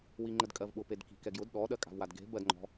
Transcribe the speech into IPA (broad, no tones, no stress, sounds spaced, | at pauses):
w i ŋ͡ǃ ə d kʼ ɜ v ɓ ʊ p e d k i̤ k ɛ ɡ j ʊ d ɗ ɔ ɗ ɜ kʼ a̤ v w a d ɡ e̤ b ɜ d ŋ͡ǃ ɔ̤